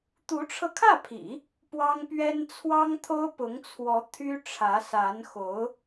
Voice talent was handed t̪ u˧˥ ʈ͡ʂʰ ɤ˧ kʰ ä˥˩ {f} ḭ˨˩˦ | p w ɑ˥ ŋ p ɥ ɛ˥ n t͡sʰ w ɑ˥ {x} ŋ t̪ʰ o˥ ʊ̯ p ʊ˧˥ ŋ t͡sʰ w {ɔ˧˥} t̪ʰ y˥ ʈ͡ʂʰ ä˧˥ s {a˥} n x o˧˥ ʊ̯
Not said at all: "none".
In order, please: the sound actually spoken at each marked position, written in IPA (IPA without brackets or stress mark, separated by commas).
pʰ, none, ɔ˧˥, a˧˥